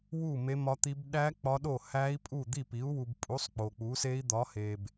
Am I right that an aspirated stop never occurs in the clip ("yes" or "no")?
yes